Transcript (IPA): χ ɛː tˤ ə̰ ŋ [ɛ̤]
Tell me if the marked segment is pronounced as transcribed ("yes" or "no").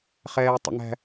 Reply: no